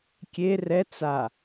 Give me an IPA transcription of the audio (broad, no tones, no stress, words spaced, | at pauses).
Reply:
kʲe rɛ t͡sa